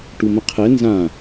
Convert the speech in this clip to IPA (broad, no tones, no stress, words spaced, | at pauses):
ʈumə̃qʰɛ nzã